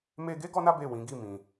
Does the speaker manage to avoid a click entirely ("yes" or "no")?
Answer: yes